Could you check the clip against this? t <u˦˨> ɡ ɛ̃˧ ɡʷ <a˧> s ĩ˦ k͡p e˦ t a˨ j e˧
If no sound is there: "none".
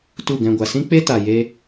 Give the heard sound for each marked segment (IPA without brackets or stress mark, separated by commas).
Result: u˦˨, a˨